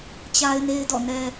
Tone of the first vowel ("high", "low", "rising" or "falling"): high